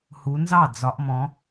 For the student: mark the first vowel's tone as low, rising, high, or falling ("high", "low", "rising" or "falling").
rising